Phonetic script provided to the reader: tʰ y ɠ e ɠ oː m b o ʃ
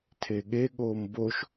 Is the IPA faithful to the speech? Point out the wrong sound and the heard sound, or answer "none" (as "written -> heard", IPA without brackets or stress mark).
y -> e